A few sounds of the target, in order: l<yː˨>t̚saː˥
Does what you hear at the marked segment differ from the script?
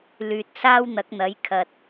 no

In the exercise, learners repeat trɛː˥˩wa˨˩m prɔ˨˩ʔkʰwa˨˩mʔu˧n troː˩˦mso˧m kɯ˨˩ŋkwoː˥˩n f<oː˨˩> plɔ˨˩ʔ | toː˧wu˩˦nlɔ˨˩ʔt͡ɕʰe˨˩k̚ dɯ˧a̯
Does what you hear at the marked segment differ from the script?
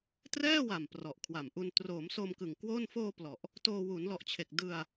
yes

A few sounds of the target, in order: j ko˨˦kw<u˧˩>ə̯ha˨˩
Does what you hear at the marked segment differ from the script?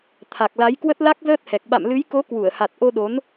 no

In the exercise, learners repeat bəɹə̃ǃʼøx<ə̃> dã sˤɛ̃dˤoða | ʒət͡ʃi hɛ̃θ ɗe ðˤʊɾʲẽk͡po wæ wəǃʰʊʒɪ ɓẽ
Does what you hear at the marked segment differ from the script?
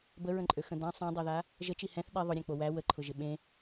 no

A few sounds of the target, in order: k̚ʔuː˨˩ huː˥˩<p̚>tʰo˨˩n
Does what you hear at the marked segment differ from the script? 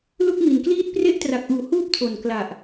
no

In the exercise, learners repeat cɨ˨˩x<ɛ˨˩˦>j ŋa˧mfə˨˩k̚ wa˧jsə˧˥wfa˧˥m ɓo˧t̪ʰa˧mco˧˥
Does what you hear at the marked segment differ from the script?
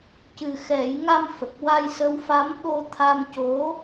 no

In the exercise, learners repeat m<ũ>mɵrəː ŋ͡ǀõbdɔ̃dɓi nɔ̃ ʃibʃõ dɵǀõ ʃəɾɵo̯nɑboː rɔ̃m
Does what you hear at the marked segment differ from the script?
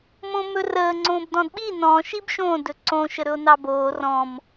yes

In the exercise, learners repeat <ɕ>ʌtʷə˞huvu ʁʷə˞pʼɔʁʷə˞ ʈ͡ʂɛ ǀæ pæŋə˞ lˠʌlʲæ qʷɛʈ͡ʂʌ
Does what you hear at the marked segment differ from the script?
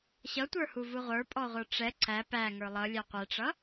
no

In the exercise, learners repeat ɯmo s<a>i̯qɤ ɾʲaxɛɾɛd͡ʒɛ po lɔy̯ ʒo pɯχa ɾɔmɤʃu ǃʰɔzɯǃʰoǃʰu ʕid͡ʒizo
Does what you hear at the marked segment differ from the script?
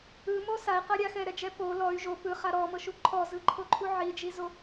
no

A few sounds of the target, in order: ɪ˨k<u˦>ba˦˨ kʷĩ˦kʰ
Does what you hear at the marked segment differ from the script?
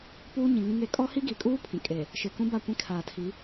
yes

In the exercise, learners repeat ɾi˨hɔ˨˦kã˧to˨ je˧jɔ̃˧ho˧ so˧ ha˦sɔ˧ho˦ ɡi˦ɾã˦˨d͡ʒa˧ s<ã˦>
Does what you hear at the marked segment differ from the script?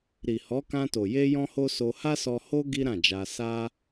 yes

